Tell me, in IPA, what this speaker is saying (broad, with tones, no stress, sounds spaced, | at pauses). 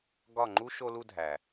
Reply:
ɡ ɒ˦˨ ŋ͡ǃ u˦ ʃ o˧ l u˧ dʱ æ˨